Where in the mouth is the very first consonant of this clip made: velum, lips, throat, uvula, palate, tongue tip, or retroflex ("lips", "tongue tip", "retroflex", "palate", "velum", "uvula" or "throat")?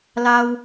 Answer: tongue tip